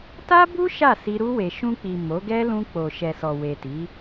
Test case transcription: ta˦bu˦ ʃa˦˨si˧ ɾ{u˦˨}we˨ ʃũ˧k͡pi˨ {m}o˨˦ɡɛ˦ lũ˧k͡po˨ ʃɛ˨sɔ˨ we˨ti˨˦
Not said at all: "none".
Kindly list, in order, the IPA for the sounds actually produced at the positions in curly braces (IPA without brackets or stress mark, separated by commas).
u˧, m